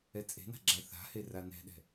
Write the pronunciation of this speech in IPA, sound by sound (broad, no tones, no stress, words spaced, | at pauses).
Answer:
ɛt͡sʼe̤na̤ ɡ͡ǁaθa̤he ranɛ̤ɗɛ̤